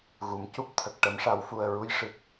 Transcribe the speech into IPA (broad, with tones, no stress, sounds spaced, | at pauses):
ɣ u˨˩˨ m c u˦˥ p̚ t̪ʰ ə˨˩ k̚ ʈ ə˨˩˦ m ʂ a˨˩˦ w f u˨˩ ə̯ ɹ u˧ j ʂ ɨ˨˩ k̚